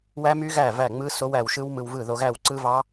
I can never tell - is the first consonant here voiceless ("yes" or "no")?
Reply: no